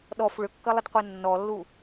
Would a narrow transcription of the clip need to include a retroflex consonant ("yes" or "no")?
yes